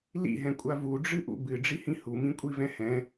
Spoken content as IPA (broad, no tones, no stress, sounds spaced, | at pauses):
l ḭ ɦ ɛ̃ kʷʼ a v u ɖ͡ʐ ɨ ʔ ṵ b ɨ ɖ͡ʐ i h ĩ h u m ĩ kʷʼ i v ɛ̃ h ɛ̃